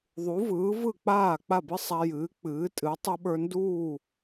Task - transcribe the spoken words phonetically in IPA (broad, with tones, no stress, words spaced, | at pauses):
ðˤu˩˥vɯː˩˥vɯ˥˩ k͡paː˥˩k͡pa˥˩bɨ˥ sˤa˧jɨː˩˥ k͡pɨː˩˥tʼɨ˩˥ tˤɯ˧ɓə˞˧nduː˥˩